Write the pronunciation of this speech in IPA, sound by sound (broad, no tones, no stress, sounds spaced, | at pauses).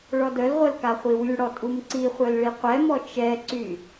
ɭ ɔ d œ l ʁʷ œ l k a χʷ i w y ɽ ɔ tʼ u m ǀ i χʷ œ l ɭ i qʷ ɛ m ɔ t͡ʃ ɛ ǀ y